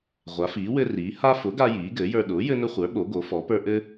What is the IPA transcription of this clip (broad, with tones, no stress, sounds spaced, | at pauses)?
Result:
ʁʷ a˩˥ f iː˩˥ w ɘ˦ r iː˩˥ h a˦ f ʊ˩˥ ɡ a˦ j iː˩˥ ɡ ɘː˩˥ j ə˞˦ ɗ ʊː˩˥ j ɘ˦ n ʊ˦ χʷ ə˞˩˥ ɓ o˩˥ ɡ o˩˥ f ɔ˩˥ p ə˞˦ ʔ ɘ˦